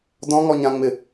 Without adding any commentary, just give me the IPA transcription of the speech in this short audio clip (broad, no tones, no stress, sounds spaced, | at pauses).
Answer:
d ɔ̃ ŋ ɔ ɲ ã ŋ͡m ɪ